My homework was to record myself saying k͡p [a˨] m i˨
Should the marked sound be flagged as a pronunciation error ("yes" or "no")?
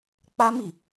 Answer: yes